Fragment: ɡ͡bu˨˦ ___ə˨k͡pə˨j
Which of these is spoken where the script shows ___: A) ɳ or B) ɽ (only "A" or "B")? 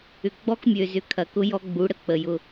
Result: B